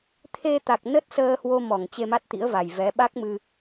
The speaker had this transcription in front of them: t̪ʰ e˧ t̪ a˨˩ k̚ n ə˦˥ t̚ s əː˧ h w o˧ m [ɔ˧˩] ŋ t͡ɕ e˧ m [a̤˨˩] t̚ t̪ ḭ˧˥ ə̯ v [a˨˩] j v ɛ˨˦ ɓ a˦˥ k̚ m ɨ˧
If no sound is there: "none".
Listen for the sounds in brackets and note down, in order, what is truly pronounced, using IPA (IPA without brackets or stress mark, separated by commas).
ɔ˧˩, a˦˥, a˨˩